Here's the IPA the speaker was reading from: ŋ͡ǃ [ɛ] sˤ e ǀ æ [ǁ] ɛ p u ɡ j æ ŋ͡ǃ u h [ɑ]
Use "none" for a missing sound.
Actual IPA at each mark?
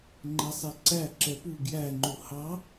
ɛ, ǁ, ɑ

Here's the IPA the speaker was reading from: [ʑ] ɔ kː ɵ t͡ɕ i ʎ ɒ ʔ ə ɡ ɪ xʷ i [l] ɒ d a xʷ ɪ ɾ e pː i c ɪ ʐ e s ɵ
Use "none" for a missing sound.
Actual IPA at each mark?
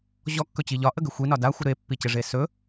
ʑ, n

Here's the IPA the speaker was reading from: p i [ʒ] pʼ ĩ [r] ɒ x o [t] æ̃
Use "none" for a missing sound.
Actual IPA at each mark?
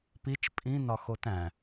t͡ʃ, n, t

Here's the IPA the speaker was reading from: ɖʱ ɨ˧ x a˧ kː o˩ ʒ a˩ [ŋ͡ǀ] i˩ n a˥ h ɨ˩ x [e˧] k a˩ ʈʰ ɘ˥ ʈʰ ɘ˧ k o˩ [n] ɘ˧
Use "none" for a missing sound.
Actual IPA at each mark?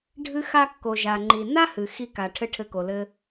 ŋ͡ǃ, i˧, l

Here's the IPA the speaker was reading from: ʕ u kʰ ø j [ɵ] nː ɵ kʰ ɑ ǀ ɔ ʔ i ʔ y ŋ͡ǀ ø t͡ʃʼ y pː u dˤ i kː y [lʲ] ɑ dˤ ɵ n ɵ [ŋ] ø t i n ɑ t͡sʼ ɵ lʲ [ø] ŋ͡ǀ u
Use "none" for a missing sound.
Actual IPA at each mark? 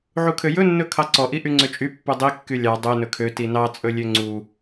ɵ, lʲ, kʰ, ø

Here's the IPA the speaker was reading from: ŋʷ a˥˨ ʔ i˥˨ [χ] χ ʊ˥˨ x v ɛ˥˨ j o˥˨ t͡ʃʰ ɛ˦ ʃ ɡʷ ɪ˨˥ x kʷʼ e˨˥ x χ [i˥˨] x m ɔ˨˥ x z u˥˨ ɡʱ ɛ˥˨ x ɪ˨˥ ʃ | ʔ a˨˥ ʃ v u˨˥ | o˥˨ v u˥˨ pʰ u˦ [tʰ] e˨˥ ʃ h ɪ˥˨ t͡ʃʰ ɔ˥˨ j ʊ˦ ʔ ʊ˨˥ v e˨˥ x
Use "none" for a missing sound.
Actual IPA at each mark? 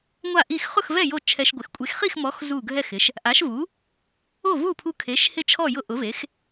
x, i˥˨, kʰ

